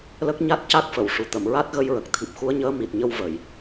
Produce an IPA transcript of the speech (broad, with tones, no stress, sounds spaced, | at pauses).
l ə˦˥ k̚ ɲ a˦˥ t̚ c a˦˥ k̚ f ə˨˩˨ w ʂ u˨˩ t̪ ə˨˩˨ m ɹ a˦˥ t̚ ɣ ə˧ j ɹ ə˨˩ k̚ t̪ʰ i˨˩ p̚ x u˧˥ ə̯ ɲ əː˧˥ m i˨˩ t̚ ɲ ə˧ w v ə˨˩˨ j